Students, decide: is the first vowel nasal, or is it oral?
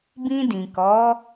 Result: nasal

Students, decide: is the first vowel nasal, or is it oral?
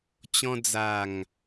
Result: nasal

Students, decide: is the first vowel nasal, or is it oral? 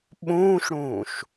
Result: nasal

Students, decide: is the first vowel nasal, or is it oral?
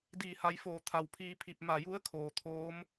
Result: oral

